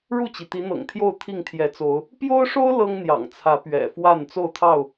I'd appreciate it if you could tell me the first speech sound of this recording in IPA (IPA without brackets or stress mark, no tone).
ɻ